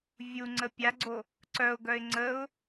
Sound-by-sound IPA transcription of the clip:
vʲ u ŋ͡ǀ ə pʲ a ɡ͡ǀ o | ǀ œ ʊ̯ ɡ œ ɪ̯ ŋ͡ǀ ə ʊ̯

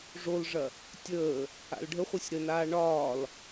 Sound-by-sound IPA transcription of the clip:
ʐ o l ʐ ɐ | tʲ əː | a̰ l ɖʱ ə χʷ ɨ sʲ ɾ ə n aː ɳ ɒː l

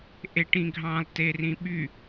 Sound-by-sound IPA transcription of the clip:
ʔ e ʈ ĩ ɡʱ ɑ̃ lˠ t e r ĩ ɓ y

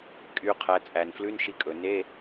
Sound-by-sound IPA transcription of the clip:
kʼ y˩˧ qʰ æ˩˧ t͡sʼ æ˩ n f l ʉ˧˥˧ n ʃ i˧ kʼ ɵ˩ n e˧˥˧

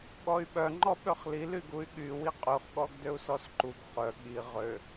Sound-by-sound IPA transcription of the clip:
ɠ ɔ y̯ ɓ œ ŋ͡ǃ ɔ ɓ ø χ l i l y ɡ u y̯ ɠ y w i qʼ y χ ɠ ɔ ɡ d ø u̯ s ɔ s ǃ u ɡ χ œ ɠ i ʁ ø

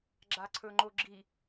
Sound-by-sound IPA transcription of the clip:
ɡ͡ǁ a ǀʰ ɵ ŋ͡ǃ o ɡ͡ǁ i

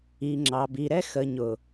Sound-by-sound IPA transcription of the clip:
i˨ ŋ͡ǁ ɑ˨ b i˨ ɾ ɛ˦ x ə˨ ɲ ʊ˨

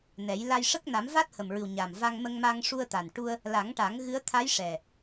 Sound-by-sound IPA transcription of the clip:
n ɛ˨˩˦ j l a˧ j ʂ ə˦˥ k̚ n a˨˩˦ m v a˦˥ t̚ h ə˨˩ m ɹ ɨ˨˩ w ɲ a˨˩ m v a˧ ŋ m ə˧ ŋ m a˧ ŋ ʂ u˧ ə̯ t̪ a˨˩ n ʈ u˧ ə̯ | l a˨˩˦ ŋ ʈ a˨˩˦ ŋ ɣ ɨ˧˥ ə̯ t̪ʰ a˧˥ j ʂ ɛ˨˩

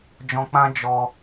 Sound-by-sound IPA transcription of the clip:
d͡ʒ ɔ̃˧ k͡p ã˦ d͡ʒ ɔ˧

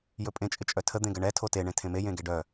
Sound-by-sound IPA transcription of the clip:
j ɵ pʼ ẽ t͡ʃʼ ɪ t͡ʃʼ œ tʰ ə d̪ ẽ ɡ ə ɳ ɛ tʰ o t e ɳ ẽ tʰ ẽ m e j ẽ ɡ e ɖ œ

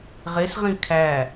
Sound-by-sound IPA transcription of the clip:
ʁ e s ʁ ĩ kʰ æ

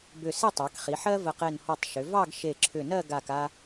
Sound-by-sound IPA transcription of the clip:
b ʏ˧˩ s e˥˧ tˤ ɑ˩˧ k χ i˩˧ ħ ɜ˥ v ə˧˩ q e˧˩ n h ɔ˧˩ tˤ ʃ ʏ˩˧ v ɑ˥˧ ɡ ʃ e˧˩ ǁʰ ʏ˧˩ n ɜ˥˧ ɡ a˧˩ k a˧

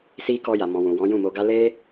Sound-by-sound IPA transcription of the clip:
s i˧ k ɔ˧ j a˨ m ɔ̃˨ w ũ˨ w ɔ̃˨˦ j ũ˦˨ m o˧ ɡ a˦ l e˦

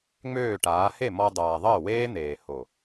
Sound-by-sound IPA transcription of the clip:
ŋ͡m øː˦˨ ʈ aː˨˦ h e˦˨ m ɔ˧ dˤ aː˨ ðˤ əː˦˨ w eː˦ n̪ eː˨ h o˨

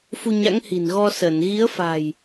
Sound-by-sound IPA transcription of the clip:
f u˧ ɲ a̰˧˥ ŋ h i̤˨˩ n ɣ ɔ˧ s ə˧˩ n ɣ i˨˦ ə̯ f a̤˨˩ j

